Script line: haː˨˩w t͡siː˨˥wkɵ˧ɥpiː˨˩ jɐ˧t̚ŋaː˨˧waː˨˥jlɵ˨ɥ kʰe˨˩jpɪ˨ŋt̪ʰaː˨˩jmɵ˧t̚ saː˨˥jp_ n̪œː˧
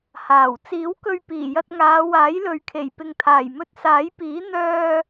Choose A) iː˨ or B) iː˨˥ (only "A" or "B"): B